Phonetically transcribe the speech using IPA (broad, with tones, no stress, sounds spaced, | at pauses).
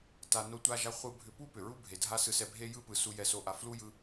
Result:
t a˧ n o˧ tʷ a˧ ʒ a˧ χʷ ɯ˧ bʱ ʏ˧ p u˦ p ʏ˨ ɹ u˦ bʱ e˨ dʱ a˦ s ɯ˧ s ɛ˧ bʱ e˦ j ɯ˦ p ɯ˨ s u˧ j ɛ˧ s o˧ ʔ a˧ f l u˦ j ɯ˧